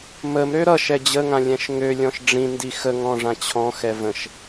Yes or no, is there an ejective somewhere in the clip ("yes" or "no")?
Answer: no